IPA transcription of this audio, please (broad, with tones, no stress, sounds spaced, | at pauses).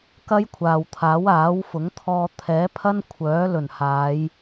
k ɐ˥ j kʷʰ aː˨ w t̪ʰ aː˨˥ w aː˨˥ w f ʊ˨˥ ŋ t̪ʰ ɔː˧ t̪ʰ ɛː˨˥ pʰ ɐ˥ n kʷʰ œː˨˥ l ɵ˨˩ n h aː˨˧ j